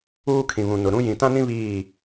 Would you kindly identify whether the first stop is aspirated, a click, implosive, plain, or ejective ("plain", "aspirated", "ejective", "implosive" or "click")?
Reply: aspirated